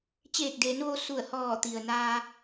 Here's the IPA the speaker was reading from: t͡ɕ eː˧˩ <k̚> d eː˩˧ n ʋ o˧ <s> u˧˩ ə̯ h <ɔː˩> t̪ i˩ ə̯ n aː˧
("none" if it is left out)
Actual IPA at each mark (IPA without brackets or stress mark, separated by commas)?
k̚, s, ɔː˧˩